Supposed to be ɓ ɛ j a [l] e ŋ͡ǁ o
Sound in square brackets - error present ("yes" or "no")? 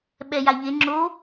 yes